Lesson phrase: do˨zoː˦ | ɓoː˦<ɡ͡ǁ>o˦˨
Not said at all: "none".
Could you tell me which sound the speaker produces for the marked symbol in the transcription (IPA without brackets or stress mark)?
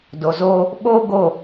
ɡ